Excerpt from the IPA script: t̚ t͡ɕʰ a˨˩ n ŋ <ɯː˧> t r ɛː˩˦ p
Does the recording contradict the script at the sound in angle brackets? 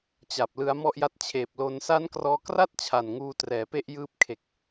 yes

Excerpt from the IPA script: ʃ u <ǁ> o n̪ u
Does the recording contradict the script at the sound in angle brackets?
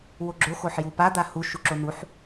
no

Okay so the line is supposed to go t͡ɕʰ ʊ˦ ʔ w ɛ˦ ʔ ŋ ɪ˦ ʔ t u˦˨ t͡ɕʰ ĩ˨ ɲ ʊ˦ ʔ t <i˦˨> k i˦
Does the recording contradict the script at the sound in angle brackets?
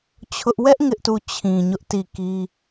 no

